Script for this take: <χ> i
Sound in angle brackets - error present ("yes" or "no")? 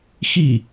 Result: yes